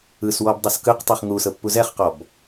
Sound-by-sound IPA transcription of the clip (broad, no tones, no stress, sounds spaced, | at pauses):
ɯ s w ɔ b dˤ ɤ s k ɯ q tˤ u χ ŋ u s ɤ pː u z ɛ χ q ɔ b